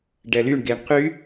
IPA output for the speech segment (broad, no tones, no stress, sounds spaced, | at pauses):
ɖ ɛ l y ɳ ɡ e ɳ q y